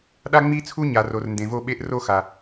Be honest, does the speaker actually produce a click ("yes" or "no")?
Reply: no